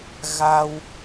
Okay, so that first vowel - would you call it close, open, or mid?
open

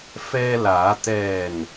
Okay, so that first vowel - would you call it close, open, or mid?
mid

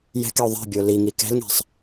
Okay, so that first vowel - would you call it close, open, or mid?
mid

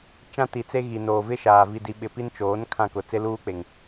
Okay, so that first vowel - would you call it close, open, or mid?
open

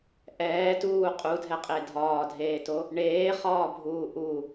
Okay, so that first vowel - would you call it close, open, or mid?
mid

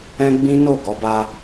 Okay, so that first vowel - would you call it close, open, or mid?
mid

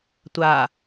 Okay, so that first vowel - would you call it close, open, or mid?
open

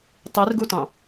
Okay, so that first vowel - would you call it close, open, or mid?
close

